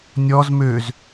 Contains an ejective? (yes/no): no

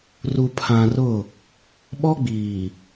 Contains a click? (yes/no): no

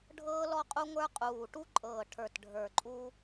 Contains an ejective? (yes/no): yes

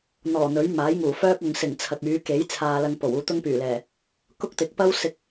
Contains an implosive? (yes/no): no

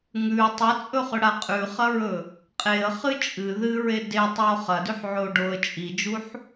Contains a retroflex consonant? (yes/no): yes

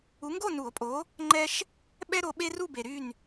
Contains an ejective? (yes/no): yes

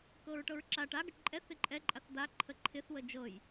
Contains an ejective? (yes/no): yes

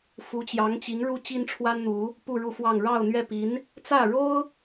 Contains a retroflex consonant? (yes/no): yes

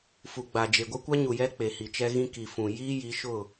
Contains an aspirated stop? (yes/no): no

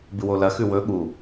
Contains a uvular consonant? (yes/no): no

